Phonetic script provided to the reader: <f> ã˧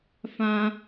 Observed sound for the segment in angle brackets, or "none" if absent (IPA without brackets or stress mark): f